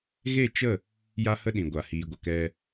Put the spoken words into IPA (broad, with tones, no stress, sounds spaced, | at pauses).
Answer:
ɣ e˦˨ t͡ʃ ə˦˨ | j a˦ h ə˦ ɗ ĩ˨ ɡʷ a˨ h iː˨ ɡʷ ə˨ k ɛ˧